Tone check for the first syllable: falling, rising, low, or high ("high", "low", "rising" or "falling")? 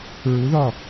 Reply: rising